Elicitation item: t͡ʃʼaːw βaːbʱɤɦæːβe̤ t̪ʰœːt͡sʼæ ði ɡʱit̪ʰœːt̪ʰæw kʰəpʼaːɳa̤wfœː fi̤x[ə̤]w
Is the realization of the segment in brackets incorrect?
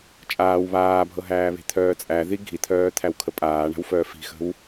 no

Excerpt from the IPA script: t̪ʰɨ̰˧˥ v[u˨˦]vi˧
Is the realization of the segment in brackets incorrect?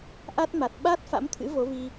yes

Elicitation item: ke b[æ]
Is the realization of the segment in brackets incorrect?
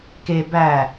no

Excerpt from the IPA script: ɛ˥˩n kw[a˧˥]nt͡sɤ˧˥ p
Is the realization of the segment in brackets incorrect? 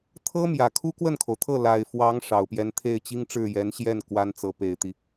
yes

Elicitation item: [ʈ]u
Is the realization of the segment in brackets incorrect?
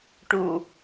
no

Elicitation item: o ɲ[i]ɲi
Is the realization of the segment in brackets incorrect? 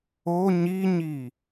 no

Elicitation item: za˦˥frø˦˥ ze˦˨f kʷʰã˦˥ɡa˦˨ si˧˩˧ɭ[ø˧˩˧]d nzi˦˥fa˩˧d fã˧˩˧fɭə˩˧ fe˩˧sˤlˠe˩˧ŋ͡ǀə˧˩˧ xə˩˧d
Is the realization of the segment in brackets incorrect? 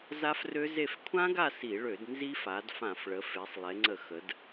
no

